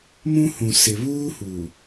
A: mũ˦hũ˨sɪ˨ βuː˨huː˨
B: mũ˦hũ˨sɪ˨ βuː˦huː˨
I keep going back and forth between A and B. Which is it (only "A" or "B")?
B